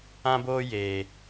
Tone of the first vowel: high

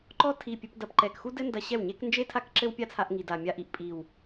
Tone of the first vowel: high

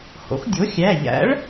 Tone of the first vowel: rising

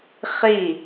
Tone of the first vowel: falling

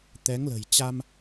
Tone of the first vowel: rising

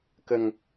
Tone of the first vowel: low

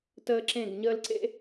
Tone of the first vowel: high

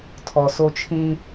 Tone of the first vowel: low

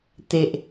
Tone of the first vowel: low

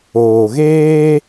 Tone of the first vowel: low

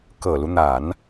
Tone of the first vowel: low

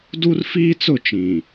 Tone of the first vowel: high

